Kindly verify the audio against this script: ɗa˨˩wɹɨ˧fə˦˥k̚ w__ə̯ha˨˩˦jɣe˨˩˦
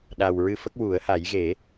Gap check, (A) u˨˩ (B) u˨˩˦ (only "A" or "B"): B